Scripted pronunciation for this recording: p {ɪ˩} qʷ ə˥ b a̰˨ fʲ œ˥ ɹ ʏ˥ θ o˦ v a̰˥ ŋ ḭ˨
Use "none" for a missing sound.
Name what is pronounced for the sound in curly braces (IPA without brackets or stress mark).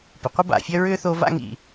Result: ɪ˩